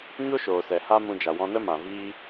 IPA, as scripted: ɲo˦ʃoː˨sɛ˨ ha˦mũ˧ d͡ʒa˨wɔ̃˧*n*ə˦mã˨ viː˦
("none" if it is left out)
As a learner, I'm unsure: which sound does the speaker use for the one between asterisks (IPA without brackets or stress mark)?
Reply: n